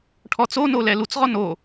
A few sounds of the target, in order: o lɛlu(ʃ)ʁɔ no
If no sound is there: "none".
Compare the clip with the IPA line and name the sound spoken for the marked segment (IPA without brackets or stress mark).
t͡s